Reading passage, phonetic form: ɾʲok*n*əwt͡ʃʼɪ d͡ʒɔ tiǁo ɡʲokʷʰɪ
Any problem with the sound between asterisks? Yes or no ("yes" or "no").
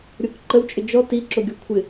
yes